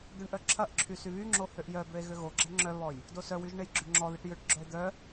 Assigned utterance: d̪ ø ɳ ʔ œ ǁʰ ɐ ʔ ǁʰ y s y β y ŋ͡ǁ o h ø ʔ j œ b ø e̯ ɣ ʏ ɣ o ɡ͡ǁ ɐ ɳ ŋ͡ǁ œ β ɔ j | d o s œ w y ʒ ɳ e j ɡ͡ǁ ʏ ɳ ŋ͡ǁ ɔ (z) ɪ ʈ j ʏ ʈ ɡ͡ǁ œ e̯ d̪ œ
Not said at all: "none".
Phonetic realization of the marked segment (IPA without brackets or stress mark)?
ð